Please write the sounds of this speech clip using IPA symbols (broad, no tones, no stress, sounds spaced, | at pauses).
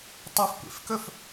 tˤ ɨ f kʷ ḛ f k ɵ f